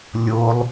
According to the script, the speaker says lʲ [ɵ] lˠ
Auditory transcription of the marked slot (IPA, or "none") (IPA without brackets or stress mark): o